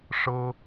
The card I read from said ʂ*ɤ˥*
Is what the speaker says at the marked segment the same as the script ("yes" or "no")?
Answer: yes